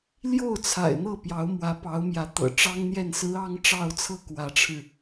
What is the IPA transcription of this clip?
l j o˥˩ ʊ̯ t͡sʰ a̰˨˩ ɪ̯ n̪ ɤ˥˩ p j ɑ˧˥ ʊ̯ m w ä˧˥ p ɑ˧˥ ʊ̯ m j ä˧˥ t̪ ɤ̰˨˩ ʈ͡ʂ ɑ˥ ŋ n̪ j ɛ˥˩ n s ɹ̩˧˥ ɑ˧˥ ŋ ʈ͡ʂ ɑ˥˧ ʊ̯ t͡sʰ ɤ˥˩ k w ä˧˥ ʈ͡ʂʰ ɻ̩˧

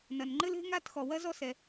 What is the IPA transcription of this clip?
n ɐ˩ n ŋ͡ǃ ɘ˥ l e̤˥ ŋ a˥ t x ɔ˩ w ɐ˥ z ɔ˥ s ɛ˩

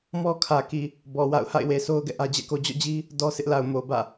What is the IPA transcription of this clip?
m ɔ˦ kʰ ä˨ k i˨ | b ɔ˨ w a̰˦˨ ʊ̯ h a̰˦˨ ɪ̯ w e˨ sʰ o˦ ʊ̯ ɡ ɛ̰˦˨ ʔ ä˦ d͡ʑ ɛ̰˦˨ k o˦ d͡ʑ ɔ̰˦˨ d͡ʑ i˦ | d ɔ˦ sʰ ɪ˦ ʔ l a˨ ʊ̯ m o˨ b ä̰˦˨

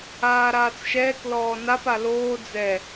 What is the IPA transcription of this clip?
aː ɾ aː t͡s ʃ ɛː k l ɔː n a p a l oː d͡z ɛ

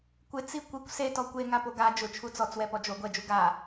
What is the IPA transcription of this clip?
kʷ ɪ t͡s i kʷ i kʷ s e t ɔ kʷ e ŋ a p o ɡ a d͡ʒ ʊ t͡ʃʰ u t͡s ɔ t͡s w ɛ p ɔ d͡ʒ o ɡʷ ɛ d͡ʒ u ɡ a

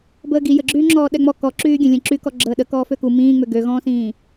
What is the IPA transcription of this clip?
b əː ɡ i j ə ɡ͡ǁ yː ŋ͡ǁ ɔː ɗ ɛ ŋ͡m ɔ k ɔ ǁ yː ɡʲ ə̃ lʲ ə̃ ǁ y k ɔ ɡ͡ǁ əː ɗ ə k ɔː f ø k u m ĩː ŋ͡m ø ɡ ø ɣ ɔ̃ː s ĩː

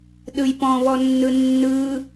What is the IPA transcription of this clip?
ɗ ɯ j p ɔ̃ β ɔ nː ɯ nː ɯ

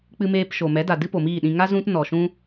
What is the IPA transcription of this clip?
k͡p ɨ˧ m eː˧ p ʃ o˨ m ɛ˨˦ d a˨ d ɨ˦ p o˨ m iː˦˨ ɗ ĩ˧ ŋ a˦ z ũ˦ t n ɔ˨ ʃ ũ˦

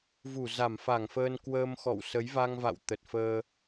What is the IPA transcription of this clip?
v u˧˩ z a˧˩ m f a˧˩ ŋ f əː˧ n k w əː˧ m x ɔ̰˧˨ w s ə˨˦ j v a˧ ŋ v a̰˧˨ w t̪ ə˨˩ t̚ f əː˧

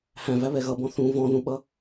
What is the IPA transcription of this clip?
h æ̃ v æ β ɛ ɣ ʌ b ɔ̃ θ ũ v ɔ̃ ð ũ ɓ ʌ

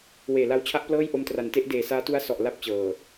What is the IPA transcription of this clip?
w eː˨˩ l a˧ w t͡ɕʰ a˦˥ ʔ p l ɤː˥˩ j ʔ o˧ m t r a˨˩ n t e˥˩ ʔ d eː˨˩ s aː˦˥ t u˦˥ a̯ s ɔ˨˩ ʔ l a˥˩ p̚ t͡ɕ ɤː˨˩

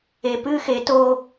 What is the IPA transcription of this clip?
e p ɨ x e t o

